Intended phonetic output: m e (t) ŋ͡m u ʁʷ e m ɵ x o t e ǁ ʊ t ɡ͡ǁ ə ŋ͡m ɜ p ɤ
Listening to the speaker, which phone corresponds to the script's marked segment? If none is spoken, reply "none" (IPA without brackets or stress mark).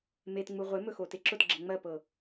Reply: t